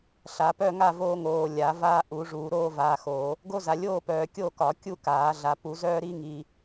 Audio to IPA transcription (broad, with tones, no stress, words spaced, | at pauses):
ɬa˨˩˦pœ˥˨ŋa˥˨voː˦ ŋoː˨ lʲa˨˩˦vaː˦ʔu˨˩˦ʐuː˨˩˦ ɾoː˦vaː˨xoː˨˩˦ | ɡo˦za˨ lʲoː˥˨pœː˨ kʲo˥˨kɒ˨˩˦ kʲu˥˨kaː˨˩˦ɮa˨ pu˨˩˦zœː˦ɾi˦ŋiː˨